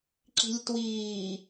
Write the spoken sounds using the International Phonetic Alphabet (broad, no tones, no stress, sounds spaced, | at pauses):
ǁ i̤ lʲ t w iː